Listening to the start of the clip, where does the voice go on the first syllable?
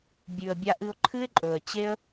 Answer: low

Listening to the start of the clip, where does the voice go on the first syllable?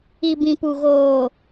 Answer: low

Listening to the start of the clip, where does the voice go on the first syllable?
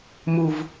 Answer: low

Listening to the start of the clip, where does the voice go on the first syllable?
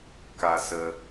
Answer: low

